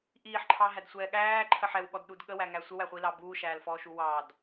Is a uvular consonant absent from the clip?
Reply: no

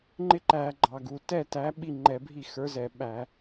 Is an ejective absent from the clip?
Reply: yes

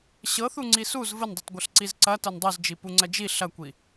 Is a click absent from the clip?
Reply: no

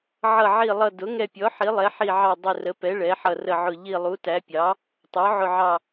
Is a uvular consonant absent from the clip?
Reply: yes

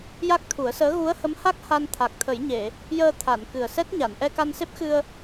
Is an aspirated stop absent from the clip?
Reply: no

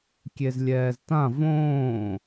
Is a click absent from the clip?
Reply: yes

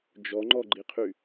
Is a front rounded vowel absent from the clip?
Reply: no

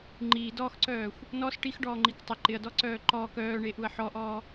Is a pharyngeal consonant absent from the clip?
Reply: no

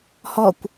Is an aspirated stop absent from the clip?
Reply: yes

